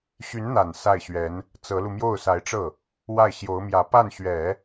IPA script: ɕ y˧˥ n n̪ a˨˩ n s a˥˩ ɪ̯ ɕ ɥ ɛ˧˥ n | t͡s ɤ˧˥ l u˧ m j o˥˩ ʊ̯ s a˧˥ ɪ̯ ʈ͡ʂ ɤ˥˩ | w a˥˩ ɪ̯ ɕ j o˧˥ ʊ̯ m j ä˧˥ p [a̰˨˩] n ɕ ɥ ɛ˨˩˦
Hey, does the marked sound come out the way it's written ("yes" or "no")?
no